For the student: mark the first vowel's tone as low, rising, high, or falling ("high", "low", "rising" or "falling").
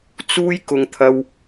high